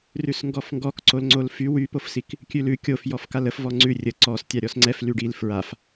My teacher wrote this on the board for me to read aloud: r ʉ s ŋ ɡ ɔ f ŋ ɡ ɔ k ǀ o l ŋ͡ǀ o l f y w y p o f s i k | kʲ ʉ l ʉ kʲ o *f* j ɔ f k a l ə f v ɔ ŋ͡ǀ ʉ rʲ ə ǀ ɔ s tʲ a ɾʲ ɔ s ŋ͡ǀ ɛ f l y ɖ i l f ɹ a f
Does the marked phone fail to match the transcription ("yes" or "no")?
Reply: no